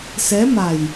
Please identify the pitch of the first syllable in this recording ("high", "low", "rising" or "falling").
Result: rising